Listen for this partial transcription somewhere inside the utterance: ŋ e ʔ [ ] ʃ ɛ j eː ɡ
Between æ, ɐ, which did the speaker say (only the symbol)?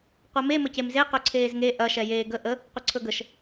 ɐ